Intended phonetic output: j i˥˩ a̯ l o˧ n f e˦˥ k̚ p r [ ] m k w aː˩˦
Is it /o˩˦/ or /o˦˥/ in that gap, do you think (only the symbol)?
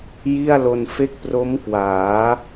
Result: o˦˥